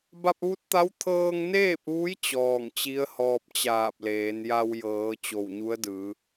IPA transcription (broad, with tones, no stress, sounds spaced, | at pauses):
b a˧ p̚ ʋ u˧˥ t̚ t̪ a˧˥ w t̪ʰ ɤː˧ ŋ n eː˥˨ p̚ ʋ u˧˥ j t͡ɕ ɔː˧˩ ŋ t͡ɕ i˧˥ ə̯ h ɔː˧ p̚ t͡ɕ aː˧˩ p̚ l eː˩˧ n j a˧ w j ɤː˩˧ t͡ɕ o˧˩ w ɲ u˧˥ ə̯ d ɯː˩˧